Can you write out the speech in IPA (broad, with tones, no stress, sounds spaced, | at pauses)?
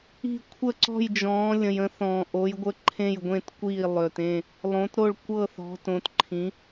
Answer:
i̤˧˩ kʷʰ ə˧˩ ǀ ɔ̤˧˩ j d͡ʒ ɔ̃ː˩˧ lʲ ə̃˩ j ə̃˩˧ θ ɔ̃ː˩ ʔ o˩˧ j ɡʷ ə˧˩ ǃʰ ẽ˧˩ j ɡʷ ẽ˧˩ t kʷ iː˧˩ lˠ ø˩ t ẽ˧˩ | lˠ õ˩˧ t ɾ o˧˩ ɭ kʷ ɤ˧˩ θ ɔ̤˩˧ t õ˩˧ t ǃʰ ĩ˩˧